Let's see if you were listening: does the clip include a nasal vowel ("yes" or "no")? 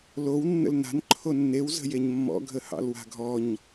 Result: no